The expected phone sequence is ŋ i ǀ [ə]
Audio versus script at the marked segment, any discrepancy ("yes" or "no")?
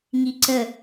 no